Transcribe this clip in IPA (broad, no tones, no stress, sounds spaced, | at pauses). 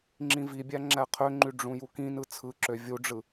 ŋ͡ǁ ĩ v i bʲ æ ŋ͡ǁ æ qʰ ø ŋ͡ǃ y ɖ͡ʐ ũ j u k ĩ n ɯ t͡sʰ ɯ ǁ ø vʲ u ɖ͡ʐ ɯ